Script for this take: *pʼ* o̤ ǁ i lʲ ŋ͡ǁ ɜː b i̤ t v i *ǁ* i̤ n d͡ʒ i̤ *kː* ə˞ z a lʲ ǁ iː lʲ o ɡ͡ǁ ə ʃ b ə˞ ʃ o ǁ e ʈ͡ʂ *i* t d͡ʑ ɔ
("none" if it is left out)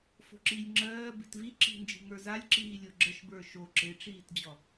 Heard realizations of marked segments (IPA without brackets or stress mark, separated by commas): f, ǁ, ŋ, iː